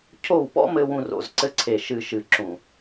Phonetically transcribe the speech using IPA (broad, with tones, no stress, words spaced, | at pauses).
cʰo˦˨wpɔ̰˦mɘ˧ wũ˧ro̰˨zǀɘ˧ ǀʰe˨ʃɨ˨ʃɨ˨ ǁũ˨